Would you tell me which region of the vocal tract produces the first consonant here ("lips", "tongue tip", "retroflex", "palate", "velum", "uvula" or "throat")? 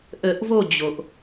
throat